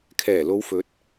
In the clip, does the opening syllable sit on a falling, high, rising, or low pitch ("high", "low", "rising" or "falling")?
low